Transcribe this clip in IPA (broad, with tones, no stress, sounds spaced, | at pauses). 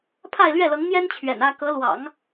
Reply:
pʰ a˥˧ ɪ̯ l ɥ ɛ˥˩ l ɤ˧˥ ŋ n̪ j ɛ˥ n t͡ɕʰ ɥ ɛ̰˨˩ n ä˥ k ɤ˧˥ l w ɑ̰˨˩˦ ŋ